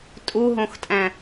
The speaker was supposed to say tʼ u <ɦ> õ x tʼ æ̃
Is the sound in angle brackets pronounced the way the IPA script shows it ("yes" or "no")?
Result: yes